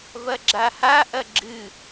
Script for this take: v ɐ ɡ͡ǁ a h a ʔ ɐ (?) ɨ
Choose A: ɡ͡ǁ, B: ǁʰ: A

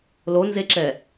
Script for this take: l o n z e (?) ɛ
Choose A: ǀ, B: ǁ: B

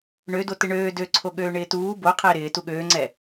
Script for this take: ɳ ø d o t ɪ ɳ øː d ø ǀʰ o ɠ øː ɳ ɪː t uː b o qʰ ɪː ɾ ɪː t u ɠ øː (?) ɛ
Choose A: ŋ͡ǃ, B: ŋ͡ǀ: B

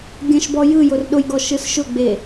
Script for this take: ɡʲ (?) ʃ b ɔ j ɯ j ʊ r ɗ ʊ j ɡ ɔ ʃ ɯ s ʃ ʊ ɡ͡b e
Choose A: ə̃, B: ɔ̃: A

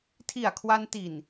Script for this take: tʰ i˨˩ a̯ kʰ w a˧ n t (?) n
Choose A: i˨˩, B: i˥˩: A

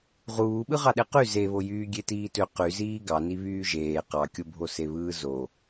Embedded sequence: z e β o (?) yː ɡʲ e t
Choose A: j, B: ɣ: A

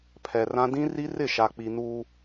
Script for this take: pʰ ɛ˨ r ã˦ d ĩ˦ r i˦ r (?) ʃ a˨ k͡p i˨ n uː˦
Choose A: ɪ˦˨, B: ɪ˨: A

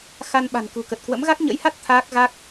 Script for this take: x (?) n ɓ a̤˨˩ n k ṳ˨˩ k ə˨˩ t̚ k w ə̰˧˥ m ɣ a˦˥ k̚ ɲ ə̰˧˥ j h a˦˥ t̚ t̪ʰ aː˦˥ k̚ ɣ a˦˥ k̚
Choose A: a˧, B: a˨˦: A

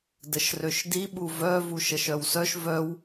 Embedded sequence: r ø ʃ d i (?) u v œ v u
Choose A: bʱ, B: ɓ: B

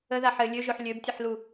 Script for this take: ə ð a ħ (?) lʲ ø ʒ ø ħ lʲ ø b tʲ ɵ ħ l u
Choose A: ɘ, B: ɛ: A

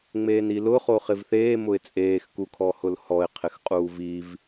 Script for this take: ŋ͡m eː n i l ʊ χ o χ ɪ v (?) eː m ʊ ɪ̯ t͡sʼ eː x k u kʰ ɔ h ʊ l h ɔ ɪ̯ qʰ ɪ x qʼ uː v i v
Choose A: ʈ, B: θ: B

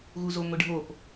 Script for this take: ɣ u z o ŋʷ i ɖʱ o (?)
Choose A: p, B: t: A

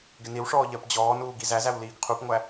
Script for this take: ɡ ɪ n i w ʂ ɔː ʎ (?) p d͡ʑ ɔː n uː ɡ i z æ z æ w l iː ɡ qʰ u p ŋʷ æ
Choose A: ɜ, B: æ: A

